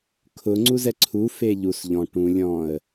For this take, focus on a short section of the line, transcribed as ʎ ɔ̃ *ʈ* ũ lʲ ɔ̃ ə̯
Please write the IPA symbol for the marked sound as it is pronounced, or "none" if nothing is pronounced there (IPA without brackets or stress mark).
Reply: ʈ